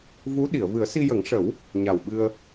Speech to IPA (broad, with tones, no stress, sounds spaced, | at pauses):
v u˧˥ ɗ i˨˩˨ ə̯ v ɨ˨˩˦ ə̯ s i˧ j ə˨˩˦ ŋ ʂ ə˨˩˦ w | ɲ a˨˩ w ɓ ɨ˧ ə̯